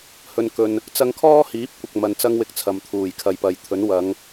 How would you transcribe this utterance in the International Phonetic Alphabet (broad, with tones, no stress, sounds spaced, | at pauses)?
h ɵ˨ n k ɵ˨ n | t͡s ɐ˧ ŋ kʰ ɔː˥ h iː˨˥ p̚ kʷ ɐ˧ k̚ m ɐ˧ n t͡s ɐ˥ ŋ w ɪ˧ k̚ t͡sʰ ɐ˨ m t̪ʰ uː˨˩ j kʰ ɐ˨˧ j p ɐ˨ j t̪ʰ ɵ˨˥ n w ɐ˨˧ ŋ